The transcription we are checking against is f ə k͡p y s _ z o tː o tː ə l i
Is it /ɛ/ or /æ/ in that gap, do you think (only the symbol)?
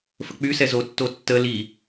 ɛ